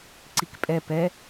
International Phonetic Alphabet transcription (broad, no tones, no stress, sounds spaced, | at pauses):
ǀ i k pʼ ɛ p ɛ